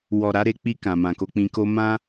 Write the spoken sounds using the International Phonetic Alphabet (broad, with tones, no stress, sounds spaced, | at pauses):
w ɔ˨ ɾ a˨˦ ɾ e˧ k͡p i˧ k ã˨ m ã˨ k o˧ k͡p ĩ˧ k o˧ m ã˦